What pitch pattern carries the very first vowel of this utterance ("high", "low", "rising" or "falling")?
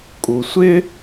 low